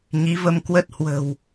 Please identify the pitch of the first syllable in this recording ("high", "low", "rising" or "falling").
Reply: rising